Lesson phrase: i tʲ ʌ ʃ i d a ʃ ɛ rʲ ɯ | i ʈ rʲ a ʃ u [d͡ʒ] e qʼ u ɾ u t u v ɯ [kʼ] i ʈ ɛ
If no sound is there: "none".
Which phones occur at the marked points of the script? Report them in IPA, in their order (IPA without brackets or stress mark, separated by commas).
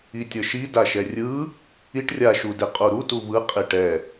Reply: d, qʼ